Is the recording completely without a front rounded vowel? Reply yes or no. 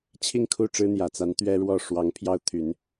no